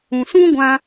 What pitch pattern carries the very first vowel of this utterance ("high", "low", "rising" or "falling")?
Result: low